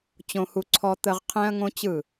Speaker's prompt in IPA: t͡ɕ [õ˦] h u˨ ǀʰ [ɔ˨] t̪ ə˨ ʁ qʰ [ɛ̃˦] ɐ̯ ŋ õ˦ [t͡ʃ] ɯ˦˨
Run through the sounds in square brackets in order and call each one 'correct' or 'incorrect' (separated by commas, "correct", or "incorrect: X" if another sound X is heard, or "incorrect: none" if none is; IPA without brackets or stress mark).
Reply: incorrect: õ˨, correct, correct, incorrect: t͡ɕ